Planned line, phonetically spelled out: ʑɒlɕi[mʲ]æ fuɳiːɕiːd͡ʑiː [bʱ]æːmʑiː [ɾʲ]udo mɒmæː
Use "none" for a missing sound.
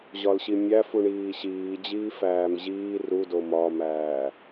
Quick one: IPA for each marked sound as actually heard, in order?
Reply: mʲ, f, r

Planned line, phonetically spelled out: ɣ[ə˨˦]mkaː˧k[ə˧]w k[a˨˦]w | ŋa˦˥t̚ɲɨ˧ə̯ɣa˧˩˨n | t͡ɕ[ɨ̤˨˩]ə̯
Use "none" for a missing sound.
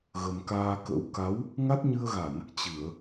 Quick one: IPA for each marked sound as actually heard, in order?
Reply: ə˨˩, ə̰˧˥, a˨˦, ɨ˧˩˨

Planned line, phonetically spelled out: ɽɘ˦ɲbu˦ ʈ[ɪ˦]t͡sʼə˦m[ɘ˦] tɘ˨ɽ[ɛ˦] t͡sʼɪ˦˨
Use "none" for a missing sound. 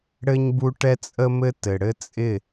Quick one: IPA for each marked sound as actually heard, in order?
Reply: ɛ˦, ɘ˦, ɘ˦

